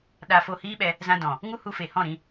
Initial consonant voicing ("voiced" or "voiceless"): voiced